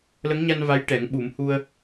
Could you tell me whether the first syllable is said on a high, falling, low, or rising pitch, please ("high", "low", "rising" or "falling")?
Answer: rising